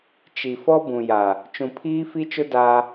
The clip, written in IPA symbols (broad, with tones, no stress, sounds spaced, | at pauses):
t͡ʃ i˨ f ɔ˦ b ũ˨ j a˨ | t͡ʃ ũ˨ pʰ iː˦ f i˦ t͡ʃ ʊ˦ d a˦